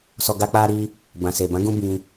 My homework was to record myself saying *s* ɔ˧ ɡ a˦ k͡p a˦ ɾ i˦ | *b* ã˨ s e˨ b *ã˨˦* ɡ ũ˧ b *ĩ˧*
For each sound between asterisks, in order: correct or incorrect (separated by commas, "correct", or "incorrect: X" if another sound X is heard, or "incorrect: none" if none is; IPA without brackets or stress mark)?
correct, correct, correct, correct